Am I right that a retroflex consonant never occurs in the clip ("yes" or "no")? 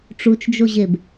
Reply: no